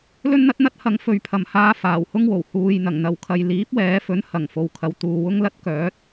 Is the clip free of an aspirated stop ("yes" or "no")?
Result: no